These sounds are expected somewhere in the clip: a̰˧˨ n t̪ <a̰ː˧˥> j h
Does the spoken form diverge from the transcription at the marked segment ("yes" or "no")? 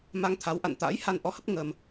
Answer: no